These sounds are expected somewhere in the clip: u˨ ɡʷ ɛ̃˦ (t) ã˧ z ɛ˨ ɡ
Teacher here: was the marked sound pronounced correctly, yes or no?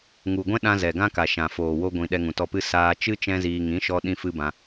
no